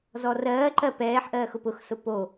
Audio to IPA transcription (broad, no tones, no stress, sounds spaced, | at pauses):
z ɔ r ɜː ǃ ɜ p ɛː ħ ʔ ɜː x ʊ p ʊ x s ʊ p o